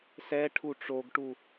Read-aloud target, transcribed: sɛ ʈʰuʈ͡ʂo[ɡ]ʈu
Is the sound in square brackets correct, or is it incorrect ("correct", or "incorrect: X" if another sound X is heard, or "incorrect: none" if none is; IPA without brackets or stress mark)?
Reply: correct